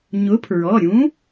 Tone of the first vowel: rising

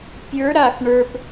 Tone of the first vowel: rising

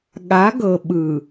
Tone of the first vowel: rising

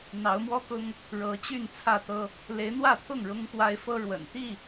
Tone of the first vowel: rising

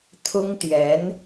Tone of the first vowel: high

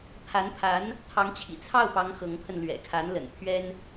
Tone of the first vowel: rising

